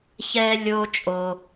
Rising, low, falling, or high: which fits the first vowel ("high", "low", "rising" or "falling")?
high